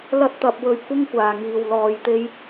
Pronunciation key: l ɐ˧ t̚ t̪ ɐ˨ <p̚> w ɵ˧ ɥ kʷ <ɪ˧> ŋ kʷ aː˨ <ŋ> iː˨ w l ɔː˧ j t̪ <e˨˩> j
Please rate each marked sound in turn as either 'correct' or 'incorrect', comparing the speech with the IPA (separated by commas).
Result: correct, incorrect, correct, incorrect